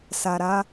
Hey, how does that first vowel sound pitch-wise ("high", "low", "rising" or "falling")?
low